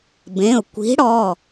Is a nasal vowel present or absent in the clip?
present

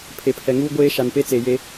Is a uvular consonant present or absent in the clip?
absent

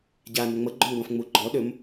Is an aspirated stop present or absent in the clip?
absent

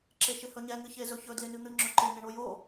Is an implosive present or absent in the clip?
absent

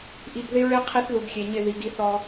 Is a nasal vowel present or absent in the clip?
absent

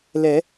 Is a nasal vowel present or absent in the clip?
absent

